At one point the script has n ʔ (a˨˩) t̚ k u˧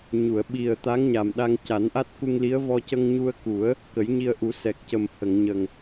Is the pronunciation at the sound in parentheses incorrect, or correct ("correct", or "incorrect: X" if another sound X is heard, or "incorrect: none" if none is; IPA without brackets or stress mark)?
incorrect: a˦˥